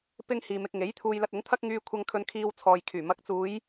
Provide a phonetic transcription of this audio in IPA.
p ɪ˥ ŋ h iː˨ m ɪ˧ k̚ ŋ e˨˥ j t̪ʰ uː˧ j l ɐ˧ t̚ ʊ˨˥ ŋ t̪ʰ ɐ˥ k̚ ŋ yː˧ kʷʰ ɐ˧ ŋ kʰ ɵ˧ n kʰ iː˧ w t͡sʰ ɔː˨ j kʰ yː˨˩ m ɐ˨˥ k̚ t͡s uː˨˧ j

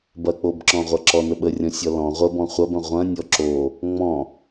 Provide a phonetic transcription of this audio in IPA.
b ɐ k͡p o b ǁ ɔ̃ ʁʷ ɐ ǁ ɔ n ə ɓ ə rʲ ɔ̃ sʲ ɔ l ɔ̃ ʁʷ ə b ɔ̃ χʷ ɐ b ɐ̃ ʁʷ ɐ̃ nʲ ɔ ǁ o | ŋ͡m ɔ̃

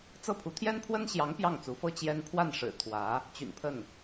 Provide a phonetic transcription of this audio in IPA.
t͡s ɤ˥˩ pʰ u˧˥ t̪ʰ j ɛ˥ n pʰ w ə˥ n ɕ j ɑ˧˥ ŋ p j ɑ˥˩ ŋ t͡s u˧˥ f ɤ˥ t͡ɕ j ɛ˥ n pʰ w a˥˩ n ʂ ɻ̩˨˩ t̪ʰ w ä˧˥ | t͡ɕ y̰˨˩ n pʰ ə˥˩ n

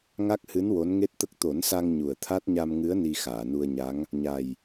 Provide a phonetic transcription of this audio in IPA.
ŋ a˦˥ k̚ h ɨ˧˥ n w o˧˥ n ŋ e˦˥ t̚ t̪ ə˦˥ k̚ t̪ o˨˩˦ n s a˧ ŋ ɲ u˨˩ ə̯ t̪ʰ a˦˥ t̚ ɲ a˧ m ŋ ɨ˧˥ ə̯ n i˧ x aː˨˩˨ n u˧ ə̯ ɲ a˧˥ ŋ | ɲ a˨˩ j

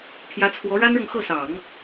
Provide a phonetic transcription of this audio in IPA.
pʰ j ä˧˥ t͡sʰ w ɔ˧˥ ɻ a˥ n ɻ ɤ˨ ŋ x ɤ˥˩ s ɑ˨˩˦ ŋ

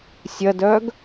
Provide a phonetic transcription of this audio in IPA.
sʲ ɐ d œ ɡ

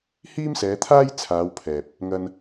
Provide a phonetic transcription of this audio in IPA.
h iː˥ m s ɛː˨˧ t̪ʰ aː˥ j t͡sʰ aː˨˧ w pʰ ɛː˨ p̚ | ŋ ɐ˧ n

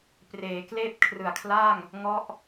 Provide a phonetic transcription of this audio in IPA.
p r eː˩˦ k l eː˥˩ p̚ kʰ r ɯ˨˩ a̯ kʰ l a˥˩ ŋ | ŋ ɔ˦˥ ʔ

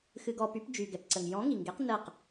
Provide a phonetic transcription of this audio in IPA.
x ɨ˧ ɡ ɔ˧ p y˨˥ p d͡ʒ y˩ ɡ ɛ˩ p ǀ ə˩ ŋ j ɔ̃˨˥ ŋ i˩ ŋ ɡ e˨˥ q n ə˥˩ q

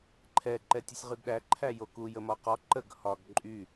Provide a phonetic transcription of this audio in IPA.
ǃʰ ɛ ǃ ɛ tʲ u sʲ ʁ y ɡ ɗ æ ǃʰ æ j o k u j ə m ɒ q ɒ ǃ ə ɡ h ɒ ɡ ǃʼ y

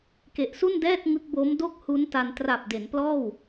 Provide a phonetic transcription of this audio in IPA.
k e˨˩ ʔ s u˥˩ n d ɛː˥˩ t̚ ŋ ɯ˦˥ k̚ b o˦˥ m d o˥˩ k̚ h u˦˥ n t a˧ n t r a˨˩ p̚ d e˩˦ n p l ɔː˥˩ w

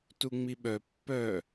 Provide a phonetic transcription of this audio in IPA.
t u ŋ͡m i ɓ œ pː œ

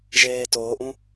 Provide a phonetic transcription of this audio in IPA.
ʒ eː t oː ʔ ũ

